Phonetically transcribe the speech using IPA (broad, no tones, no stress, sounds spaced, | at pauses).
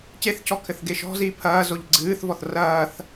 c e θ cʰ ɔ kʰ ɘ θ ɡ e ʃ ɔ̤ z iː pʰ ɐː z o ʎ ɡ͡ǀ ɨː θ v ɔ θ r ɐː θ